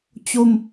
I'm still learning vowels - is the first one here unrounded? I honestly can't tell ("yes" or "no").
no